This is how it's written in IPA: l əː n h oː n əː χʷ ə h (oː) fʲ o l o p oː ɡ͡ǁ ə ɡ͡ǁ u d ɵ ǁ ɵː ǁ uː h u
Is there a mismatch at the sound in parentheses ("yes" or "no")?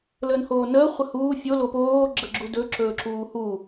yes